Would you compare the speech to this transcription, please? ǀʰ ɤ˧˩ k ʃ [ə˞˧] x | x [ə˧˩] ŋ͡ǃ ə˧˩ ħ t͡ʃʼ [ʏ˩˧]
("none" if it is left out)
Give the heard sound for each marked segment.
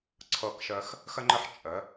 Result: ə˧, ə˧, ə˩˧

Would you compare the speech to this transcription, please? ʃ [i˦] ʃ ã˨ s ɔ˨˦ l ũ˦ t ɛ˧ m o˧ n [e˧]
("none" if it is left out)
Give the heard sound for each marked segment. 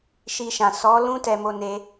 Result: i˧, e˧

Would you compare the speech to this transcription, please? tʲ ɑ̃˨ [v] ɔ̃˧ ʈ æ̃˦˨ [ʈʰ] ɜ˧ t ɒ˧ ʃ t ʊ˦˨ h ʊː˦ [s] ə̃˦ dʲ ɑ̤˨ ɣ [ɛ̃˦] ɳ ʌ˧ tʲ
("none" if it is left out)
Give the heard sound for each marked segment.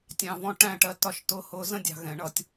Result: v, ʈ, z, ɛ̃˨

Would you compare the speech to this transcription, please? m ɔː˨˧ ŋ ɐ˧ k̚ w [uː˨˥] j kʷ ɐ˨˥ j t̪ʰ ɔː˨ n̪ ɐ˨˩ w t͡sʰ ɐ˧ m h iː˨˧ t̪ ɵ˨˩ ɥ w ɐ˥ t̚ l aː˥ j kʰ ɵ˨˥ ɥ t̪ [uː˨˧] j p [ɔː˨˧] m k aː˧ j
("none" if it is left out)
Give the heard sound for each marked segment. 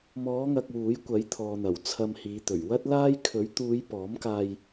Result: uː˨˥, uː˨˧, ɔː˨˥

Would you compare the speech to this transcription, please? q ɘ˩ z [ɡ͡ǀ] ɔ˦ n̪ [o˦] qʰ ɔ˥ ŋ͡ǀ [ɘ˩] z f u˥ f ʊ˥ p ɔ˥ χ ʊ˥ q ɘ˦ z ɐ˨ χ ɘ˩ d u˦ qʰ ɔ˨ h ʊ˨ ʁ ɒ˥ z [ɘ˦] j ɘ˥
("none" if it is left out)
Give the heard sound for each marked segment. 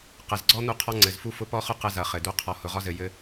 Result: ɡ͡ǀ, u˦, ɘ˩, ɘ˨

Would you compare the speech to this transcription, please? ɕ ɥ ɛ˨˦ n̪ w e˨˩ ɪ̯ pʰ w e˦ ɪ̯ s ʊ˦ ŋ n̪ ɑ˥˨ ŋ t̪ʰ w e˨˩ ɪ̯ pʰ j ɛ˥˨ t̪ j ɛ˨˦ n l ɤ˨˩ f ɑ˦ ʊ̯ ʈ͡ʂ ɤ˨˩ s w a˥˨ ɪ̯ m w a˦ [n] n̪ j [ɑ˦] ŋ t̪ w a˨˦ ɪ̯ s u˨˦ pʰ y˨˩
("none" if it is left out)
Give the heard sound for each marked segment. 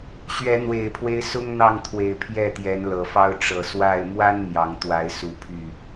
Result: n, ɑ˨˦

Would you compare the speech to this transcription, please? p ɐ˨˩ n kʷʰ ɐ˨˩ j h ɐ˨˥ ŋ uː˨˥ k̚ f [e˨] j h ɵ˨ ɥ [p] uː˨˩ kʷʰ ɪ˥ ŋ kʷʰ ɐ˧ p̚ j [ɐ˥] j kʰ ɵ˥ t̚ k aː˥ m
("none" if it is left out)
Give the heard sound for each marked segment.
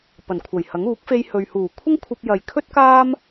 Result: e˧, h, ɐ˨

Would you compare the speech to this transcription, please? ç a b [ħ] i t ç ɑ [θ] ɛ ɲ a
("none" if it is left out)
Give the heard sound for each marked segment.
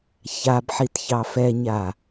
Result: ħ, f

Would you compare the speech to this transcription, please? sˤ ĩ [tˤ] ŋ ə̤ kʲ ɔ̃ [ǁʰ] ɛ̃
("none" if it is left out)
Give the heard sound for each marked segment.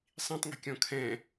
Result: tˤ, kʰ

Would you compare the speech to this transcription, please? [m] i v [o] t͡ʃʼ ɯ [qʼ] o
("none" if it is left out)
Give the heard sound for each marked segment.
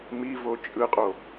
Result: m, o, qʼ

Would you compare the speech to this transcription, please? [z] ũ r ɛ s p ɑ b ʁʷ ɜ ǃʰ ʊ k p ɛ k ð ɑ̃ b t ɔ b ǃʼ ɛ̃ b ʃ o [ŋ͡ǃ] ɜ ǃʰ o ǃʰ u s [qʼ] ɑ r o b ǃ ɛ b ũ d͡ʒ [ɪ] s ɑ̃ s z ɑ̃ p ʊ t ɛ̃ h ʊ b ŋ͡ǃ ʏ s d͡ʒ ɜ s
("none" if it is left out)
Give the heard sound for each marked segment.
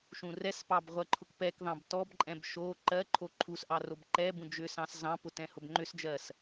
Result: ʃ, ǃ, ʔ, ʏ

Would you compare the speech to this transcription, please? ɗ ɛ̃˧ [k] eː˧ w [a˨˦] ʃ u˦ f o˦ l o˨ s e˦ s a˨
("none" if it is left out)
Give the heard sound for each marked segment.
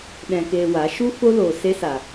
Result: k, a˨˦

